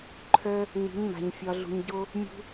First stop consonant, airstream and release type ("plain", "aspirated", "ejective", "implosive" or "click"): click